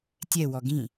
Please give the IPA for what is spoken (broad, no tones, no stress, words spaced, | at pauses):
tʲɛwɔ ɡĩ